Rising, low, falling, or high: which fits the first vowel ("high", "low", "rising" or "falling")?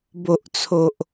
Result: low